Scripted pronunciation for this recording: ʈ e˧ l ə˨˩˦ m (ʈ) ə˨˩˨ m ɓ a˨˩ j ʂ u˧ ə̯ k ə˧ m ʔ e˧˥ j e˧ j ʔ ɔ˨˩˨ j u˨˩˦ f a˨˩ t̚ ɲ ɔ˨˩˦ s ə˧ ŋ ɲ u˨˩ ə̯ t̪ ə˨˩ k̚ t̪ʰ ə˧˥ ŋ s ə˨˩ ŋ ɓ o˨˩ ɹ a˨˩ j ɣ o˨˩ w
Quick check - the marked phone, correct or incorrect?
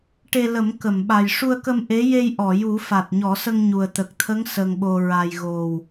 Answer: incorrect